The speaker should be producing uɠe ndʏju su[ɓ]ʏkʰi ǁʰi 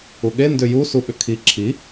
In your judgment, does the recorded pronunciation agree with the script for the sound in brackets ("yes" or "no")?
yes